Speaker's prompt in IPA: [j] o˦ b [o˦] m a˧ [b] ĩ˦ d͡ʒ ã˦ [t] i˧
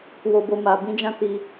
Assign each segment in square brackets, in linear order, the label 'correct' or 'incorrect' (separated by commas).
incorrect, correct, correct, correct